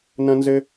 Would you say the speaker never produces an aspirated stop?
yes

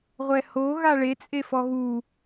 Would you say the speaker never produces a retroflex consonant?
no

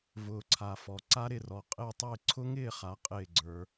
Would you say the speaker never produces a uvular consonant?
no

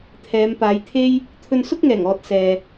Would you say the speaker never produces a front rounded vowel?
yes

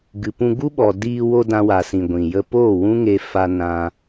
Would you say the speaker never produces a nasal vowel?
no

